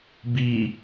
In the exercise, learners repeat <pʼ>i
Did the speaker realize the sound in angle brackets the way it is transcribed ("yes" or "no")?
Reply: no